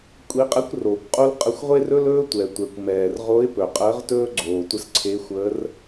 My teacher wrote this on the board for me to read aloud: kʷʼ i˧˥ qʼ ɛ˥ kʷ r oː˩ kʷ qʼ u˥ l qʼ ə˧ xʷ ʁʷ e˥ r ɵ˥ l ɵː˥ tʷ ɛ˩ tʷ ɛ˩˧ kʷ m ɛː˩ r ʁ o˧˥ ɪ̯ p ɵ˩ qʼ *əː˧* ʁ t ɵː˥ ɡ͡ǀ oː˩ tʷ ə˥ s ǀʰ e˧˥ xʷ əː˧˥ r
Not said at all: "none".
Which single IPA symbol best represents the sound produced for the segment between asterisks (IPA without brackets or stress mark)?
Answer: əː˧˥